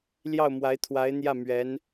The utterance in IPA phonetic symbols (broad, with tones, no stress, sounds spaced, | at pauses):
l j ɑ˥˩ ʊ̯ m w a˧˥ ɪ̯ t̪ʰ w a˧˥ ɪ̯ n̪ j ä˥˩ m ɥ ɛ˧˥ n